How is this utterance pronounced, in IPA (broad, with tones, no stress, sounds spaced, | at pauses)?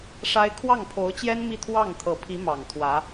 ʂ a˥ ɪ̯ kʰ w ɑ˥˩ ŋ pʰ o˧˥ ʊ̯ t͡ɕ j ɛ˥ n m i˥˧ t̪ʰ w ɑ˥˩ ŋ t̪ʰ ɤ˨˩ pʰ i˧˥ m ɑ˨˩ ŋ t̪ʰ w ä˧˥